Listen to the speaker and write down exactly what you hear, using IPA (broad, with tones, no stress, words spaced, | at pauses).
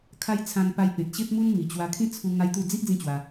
kʰa˦j t͡sʰã˧npa˧j pẽ˨t̚ɕe˦p̚mu˦n mi˨˩t͡ɕwa˧kʰĩ˦t͡sʰu˧ ŋa˦jt̪u˥˧ d͡zi˦ʔ d͡zĩ˥˧t͡ɕwa˧